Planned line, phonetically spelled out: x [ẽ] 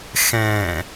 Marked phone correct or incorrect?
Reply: incorrect